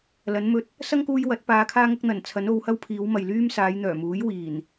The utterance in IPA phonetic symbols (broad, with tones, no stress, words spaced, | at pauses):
lɐ˨˥nmɵ˧t̚ | sɐ˥ŋkuː˧j wɐ˨˥t̚paː˨˧kʰaː˥ŋɐ˥k̚ n̪ɐ˨˩nt͡sʰɐ˨˥n o˨˧whɐ˥wpʰiː˨˧wmɐ˨j lyː˥msaː˨˧jn̪œː˨˩muː˨˥j wiː˨˩n